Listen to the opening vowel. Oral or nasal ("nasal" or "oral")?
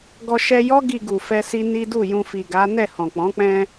oral